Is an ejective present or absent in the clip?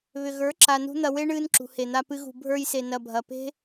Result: absent